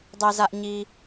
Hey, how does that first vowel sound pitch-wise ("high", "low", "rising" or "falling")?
low